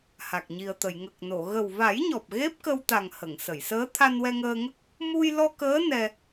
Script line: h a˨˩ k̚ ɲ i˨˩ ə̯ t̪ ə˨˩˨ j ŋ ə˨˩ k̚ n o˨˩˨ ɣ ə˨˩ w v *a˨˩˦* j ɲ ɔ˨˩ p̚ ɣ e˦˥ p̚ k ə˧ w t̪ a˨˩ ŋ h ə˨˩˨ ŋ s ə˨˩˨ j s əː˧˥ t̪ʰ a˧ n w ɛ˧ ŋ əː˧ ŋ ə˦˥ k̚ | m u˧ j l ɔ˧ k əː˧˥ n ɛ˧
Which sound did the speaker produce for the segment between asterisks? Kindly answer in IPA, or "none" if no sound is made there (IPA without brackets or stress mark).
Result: a˨˩˦